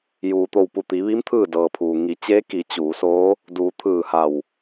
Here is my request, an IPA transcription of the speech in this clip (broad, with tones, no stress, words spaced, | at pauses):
juː˩t̪o˧˩w pu˧˩t̪i˩˧ʋi˧˥m t̪ʰɯː˥˨dɤː˩pʰuː˩ ŋi˩˧t͡ɕeː˧˥ki˩˧ t͡ɕuː˩˧soː˧˥ | duː˩˧t̪ʰɯː˧˩ha˧˩w